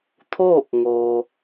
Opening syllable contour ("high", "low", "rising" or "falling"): falling